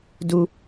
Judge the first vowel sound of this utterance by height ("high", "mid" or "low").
high